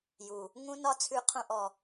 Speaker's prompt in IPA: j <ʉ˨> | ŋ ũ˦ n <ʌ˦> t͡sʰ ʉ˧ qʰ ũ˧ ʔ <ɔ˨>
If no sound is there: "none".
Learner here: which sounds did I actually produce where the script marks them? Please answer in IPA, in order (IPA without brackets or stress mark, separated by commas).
u˨, ɒ˦, ɔ˨